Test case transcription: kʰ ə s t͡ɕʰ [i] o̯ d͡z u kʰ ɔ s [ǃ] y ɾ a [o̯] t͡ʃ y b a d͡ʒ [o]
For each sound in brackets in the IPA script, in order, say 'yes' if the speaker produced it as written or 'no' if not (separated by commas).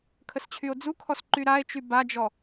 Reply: no, yes, no, no